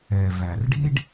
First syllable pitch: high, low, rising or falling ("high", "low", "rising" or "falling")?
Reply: low